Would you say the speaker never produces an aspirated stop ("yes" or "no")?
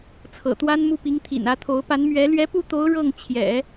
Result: no